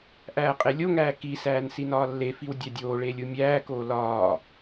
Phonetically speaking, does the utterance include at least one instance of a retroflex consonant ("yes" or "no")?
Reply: yes